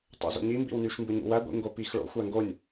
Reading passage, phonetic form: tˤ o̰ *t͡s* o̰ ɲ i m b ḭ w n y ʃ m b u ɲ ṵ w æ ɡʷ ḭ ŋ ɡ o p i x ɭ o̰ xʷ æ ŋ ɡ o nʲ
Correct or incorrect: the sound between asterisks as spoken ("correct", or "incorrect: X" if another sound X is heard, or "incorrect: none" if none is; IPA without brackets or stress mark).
incorrect: z